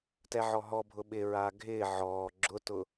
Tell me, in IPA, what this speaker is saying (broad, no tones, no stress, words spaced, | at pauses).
tɛʕɔɦɔbʱʊ ɓɪɹaː ɡʱɪː ʕɔː ɡ͡ǁʊtʊ